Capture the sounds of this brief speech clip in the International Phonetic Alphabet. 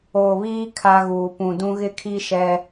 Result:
oː˨ β iː˦ kʰ a˦ ɣ uː˨ p ũ˨ d ũ˦ ɣ ɪ˦ kʰ i˦ ʃ ɛ˦

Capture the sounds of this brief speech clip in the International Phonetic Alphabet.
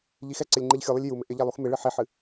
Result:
ʎ i x ɛ ǀ ɪ lʲ ŋ͡ǃ i ʎ xʲ u lˠ ɪ lʲ j u m ɪ ʔ ɪ ʎ ɛ lˠ u x m ɪ ɭ ɨ ħ i ħ ɨ

